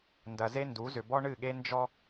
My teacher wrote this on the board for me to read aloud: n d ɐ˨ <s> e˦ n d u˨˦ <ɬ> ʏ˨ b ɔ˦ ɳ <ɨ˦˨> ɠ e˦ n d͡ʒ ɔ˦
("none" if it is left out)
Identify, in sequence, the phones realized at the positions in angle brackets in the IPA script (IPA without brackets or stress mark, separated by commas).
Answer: z, z, ɨ˦˨